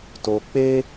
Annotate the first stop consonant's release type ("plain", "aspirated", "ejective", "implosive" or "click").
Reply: plain